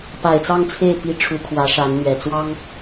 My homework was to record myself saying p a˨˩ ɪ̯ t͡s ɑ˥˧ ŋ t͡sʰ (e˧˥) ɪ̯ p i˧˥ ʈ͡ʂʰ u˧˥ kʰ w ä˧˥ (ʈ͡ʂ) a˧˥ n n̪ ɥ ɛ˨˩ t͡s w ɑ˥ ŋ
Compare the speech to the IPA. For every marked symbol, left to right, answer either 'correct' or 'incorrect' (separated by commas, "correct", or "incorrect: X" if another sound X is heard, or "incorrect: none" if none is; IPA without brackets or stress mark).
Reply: incorrect: e˥˩, incorrect: ʂ